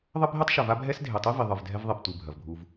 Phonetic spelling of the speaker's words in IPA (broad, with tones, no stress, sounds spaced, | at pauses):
ðˤ ɘ˦ bʱ e˦ tˤ ʃ ɐ˨ v a˦ bʱ ɛ˦ s dʱ e˨ tˤ i˦ v i˨ ðˤ ɨ˨ v dʱ ɛ˦ v ðˤ i˨ p tʷ ɨ˨ bʱ ɐ˨ v bʱ u˦ v